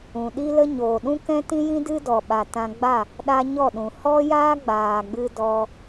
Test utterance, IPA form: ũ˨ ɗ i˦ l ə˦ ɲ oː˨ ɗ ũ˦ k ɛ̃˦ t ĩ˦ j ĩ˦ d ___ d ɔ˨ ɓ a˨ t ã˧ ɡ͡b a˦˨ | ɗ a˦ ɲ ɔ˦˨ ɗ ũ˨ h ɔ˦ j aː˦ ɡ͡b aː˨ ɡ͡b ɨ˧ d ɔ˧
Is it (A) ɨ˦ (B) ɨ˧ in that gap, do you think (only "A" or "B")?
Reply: A